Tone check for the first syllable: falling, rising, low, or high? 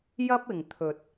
high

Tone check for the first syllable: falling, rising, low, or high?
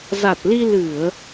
low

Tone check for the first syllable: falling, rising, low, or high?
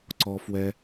low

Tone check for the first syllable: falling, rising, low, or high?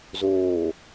low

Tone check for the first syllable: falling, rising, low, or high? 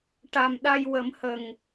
low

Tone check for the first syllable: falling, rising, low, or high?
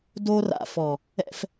high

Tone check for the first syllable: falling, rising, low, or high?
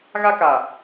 high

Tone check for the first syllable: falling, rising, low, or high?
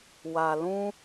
low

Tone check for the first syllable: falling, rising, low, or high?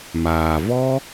low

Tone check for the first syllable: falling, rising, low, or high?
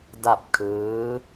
falling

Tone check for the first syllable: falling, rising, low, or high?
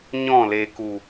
falling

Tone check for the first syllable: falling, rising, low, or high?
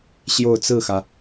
falling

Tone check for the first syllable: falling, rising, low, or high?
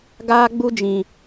high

